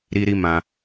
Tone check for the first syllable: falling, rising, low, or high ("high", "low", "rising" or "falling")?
high